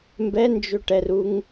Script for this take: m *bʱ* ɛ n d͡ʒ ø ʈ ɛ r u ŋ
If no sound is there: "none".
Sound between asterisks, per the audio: b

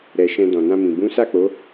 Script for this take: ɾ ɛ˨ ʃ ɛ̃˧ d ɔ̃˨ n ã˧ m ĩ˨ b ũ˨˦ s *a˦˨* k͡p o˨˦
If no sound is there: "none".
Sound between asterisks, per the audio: a˦˨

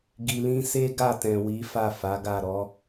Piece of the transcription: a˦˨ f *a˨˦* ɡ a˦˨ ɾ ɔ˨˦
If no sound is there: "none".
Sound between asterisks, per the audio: a˨˦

